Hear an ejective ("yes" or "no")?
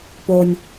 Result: no